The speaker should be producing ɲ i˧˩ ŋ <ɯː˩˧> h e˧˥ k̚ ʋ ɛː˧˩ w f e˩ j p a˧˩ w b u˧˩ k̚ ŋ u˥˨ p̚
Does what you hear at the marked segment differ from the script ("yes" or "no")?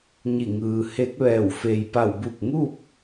yes